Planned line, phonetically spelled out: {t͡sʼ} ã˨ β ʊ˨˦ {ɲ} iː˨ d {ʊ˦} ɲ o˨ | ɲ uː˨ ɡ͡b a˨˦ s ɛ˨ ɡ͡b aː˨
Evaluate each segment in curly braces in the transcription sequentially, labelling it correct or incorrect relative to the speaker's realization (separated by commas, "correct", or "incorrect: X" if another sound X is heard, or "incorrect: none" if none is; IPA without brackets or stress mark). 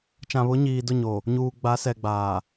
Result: incorrect: t͡ʃ, correct, incorrect: ʊ˦˨